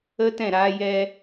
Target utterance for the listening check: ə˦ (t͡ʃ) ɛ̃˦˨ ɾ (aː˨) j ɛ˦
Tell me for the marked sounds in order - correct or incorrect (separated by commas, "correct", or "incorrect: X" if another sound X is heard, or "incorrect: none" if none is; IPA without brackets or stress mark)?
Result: incorrect: t, incorrect: aː˦